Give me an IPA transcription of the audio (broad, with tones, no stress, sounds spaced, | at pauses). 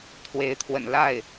t̪ʰ w e˧˥ ɪ̯ t̪ʰ w ə̰˨˩ n l a˥˩ ɪ̯